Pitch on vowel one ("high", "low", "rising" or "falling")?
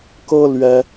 high